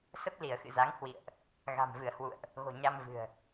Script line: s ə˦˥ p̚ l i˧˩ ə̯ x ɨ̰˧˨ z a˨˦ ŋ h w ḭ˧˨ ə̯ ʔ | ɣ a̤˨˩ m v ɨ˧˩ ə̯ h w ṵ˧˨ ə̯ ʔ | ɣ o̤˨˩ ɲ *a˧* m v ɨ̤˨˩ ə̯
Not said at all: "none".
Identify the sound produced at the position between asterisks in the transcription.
a˧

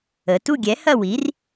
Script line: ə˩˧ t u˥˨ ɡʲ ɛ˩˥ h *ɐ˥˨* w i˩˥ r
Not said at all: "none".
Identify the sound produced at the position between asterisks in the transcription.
ɐ˥˨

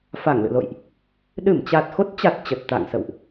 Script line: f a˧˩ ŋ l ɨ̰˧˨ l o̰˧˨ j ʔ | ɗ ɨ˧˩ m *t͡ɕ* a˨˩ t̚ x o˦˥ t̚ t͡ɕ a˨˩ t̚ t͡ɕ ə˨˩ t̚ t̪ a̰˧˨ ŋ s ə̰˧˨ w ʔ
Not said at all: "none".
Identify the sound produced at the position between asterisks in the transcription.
t͡ɕ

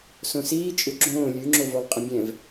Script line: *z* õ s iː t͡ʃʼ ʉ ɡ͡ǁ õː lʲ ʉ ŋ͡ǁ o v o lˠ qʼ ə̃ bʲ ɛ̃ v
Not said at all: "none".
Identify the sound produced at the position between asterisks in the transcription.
s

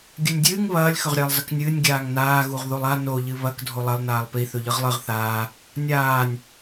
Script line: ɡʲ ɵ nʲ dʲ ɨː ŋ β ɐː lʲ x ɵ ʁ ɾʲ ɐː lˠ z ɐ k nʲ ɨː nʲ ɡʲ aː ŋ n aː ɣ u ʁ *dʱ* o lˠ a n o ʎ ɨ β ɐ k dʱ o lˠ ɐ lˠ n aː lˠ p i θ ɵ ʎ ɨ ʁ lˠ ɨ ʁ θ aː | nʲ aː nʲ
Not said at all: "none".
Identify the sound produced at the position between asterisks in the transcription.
ð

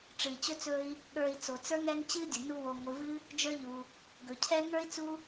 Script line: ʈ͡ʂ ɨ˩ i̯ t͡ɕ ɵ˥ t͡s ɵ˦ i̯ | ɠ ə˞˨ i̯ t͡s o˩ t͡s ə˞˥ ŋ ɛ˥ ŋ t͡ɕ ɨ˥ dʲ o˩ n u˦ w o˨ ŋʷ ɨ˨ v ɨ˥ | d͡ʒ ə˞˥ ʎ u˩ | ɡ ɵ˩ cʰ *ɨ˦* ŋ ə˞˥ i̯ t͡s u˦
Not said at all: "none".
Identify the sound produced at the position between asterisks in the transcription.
ɛ˦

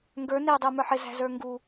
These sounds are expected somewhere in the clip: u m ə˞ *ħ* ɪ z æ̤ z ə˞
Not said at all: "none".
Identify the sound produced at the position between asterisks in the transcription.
ħ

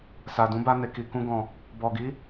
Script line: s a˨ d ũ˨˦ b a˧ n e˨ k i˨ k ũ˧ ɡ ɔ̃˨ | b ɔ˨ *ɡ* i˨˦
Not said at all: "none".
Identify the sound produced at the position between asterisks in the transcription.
ɡ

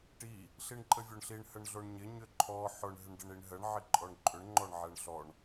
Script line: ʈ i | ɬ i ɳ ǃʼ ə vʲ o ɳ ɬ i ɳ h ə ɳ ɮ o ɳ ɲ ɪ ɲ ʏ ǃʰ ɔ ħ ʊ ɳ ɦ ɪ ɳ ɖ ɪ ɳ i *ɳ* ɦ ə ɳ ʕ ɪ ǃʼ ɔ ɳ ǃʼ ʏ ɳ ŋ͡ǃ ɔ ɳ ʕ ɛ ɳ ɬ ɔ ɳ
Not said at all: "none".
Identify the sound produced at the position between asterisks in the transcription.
ɳ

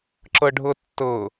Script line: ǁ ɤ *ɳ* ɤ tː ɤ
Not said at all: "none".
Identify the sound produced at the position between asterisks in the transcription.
ɖʱ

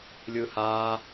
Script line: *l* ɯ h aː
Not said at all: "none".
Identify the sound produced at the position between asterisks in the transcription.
lʲ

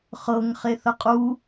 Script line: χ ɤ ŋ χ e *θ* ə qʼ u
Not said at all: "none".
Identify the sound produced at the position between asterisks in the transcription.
θ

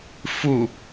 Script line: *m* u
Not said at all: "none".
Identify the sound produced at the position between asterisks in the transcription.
f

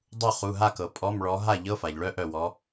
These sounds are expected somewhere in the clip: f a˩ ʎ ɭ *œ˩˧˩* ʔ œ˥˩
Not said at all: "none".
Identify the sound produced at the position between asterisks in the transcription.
œ˦˥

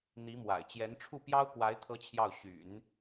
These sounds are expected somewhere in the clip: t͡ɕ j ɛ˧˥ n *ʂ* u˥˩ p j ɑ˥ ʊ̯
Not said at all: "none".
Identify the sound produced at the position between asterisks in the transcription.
ʈ͡ʂʰ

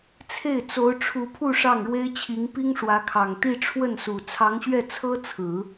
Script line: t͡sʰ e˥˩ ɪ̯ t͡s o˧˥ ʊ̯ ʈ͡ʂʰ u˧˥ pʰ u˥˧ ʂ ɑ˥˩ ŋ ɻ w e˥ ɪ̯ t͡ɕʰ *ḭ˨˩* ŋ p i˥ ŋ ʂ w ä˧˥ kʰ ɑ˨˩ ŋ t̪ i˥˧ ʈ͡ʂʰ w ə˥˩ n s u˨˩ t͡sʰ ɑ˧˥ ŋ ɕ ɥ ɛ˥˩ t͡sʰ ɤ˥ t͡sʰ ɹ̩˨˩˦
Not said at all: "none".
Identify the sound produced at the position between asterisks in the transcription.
i˧˥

